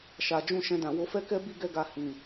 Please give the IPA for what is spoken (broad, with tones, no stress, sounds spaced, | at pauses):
ʃ a˨ d͡ʒ ũ˧ ʃ ɛ̃˧ d ã˨ w o˨˦ f ɛ˦ k ɛ˦ b i˦˨ ɡ ɛ˧ ɡ a˨ h ĩ˨